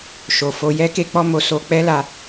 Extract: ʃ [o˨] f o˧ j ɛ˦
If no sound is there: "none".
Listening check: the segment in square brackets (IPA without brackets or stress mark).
o˨